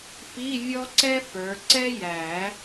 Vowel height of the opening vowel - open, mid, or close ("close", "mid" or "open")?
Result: close